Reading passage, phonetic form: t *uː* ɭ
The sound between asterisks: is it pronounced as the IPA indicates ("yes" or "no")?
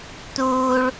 yes